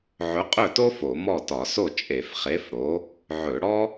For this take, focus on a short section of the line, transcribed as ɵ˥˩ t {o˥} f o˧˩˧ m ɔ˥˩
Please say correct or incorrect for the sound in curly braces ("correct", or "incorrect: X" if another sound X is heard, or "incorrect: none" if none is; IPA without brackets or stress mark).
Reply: correct